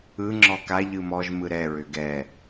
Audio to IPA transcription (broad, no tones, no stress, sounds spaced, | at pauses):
ɯ ŋ͡ǁ ɔ k a ʎ ɯ m ɔ ʒ m ɯ ɾ ɛ ɹ ʏ ɡ ɛ